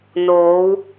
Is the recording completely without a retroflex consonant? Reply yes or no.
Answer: yes